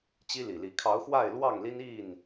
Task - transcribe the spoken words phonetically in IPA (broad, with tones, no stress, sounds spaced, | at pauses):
t͡ɕ i˦ l i˨˩ l i˨˦ kʰ ɑ˨˦ ʊ̯ x w a˥˨ ɪ̯ l w ɑ˥˨ ŋ l i˦ n i˥˨ n